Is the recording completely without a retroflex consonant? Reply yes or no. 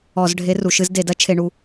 no